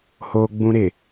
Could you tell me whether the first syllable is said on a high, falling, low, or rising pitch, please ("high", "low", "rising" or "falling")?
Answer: high